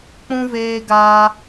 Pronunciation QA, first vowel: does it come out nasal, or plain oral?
nasal